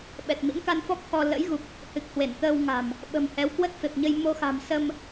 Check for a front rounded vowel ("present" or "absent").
absent